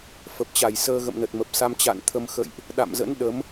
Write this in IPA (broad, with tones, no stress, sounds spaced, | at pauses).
f ə˨˩ p̚ t͡ɕ a˧˩ j s əː˧ ɣ ə̰˧˨ m n ə˨˩ t̚ m ə˨˩ p̚ s a˧ m t͡ɕ a̰˧˨ n t̪ʰ ə˧ m x ə̰˧˨ j ʔ | ɗ a̰˧˨ m z ə̰˧˥ n ɗ ə˨˦ m